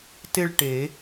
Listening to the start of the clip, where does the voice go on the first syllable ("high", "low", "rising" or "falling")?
falling